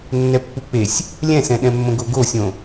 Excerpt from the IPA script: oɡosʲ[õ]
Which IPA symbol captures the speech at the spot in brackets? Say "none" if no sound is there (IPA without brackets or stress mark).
õ